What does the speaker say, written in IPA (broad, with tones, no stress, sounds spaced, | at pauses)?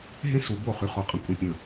ɦ ẽ˦ s u˨ b o˦˨ χ y˨ χ o˨ qʼ ə̃˨ kʷʼ ə̃˨ pʲ ə̃˨